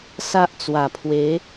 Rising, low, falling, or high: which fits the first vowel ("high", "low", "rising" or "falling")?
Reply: high